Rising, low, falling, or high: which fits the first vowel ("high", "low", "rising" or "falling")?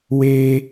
high